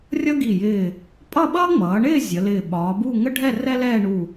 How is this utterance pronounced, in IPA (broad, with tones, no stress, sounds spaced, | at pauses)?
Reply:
rʲ ʌ˥ ɡ i˧˩ j ɪː˧˩ | pʼ ʌ˥˧ ɓ ʌː˥ ŋ͡m ʌː˩˧ ɳ ɪː˥˧ zʲ ə˩˧ l ɪː˧˩ ɓ ɒː˩˧ b u˥˧ ŋ ə˥ ɖʱ ɛ˥˧ r ɛ˥ l ɛː˥˧ ɳ u˧˩